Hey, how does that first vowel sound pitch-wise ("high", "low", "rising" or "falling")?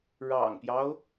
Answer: low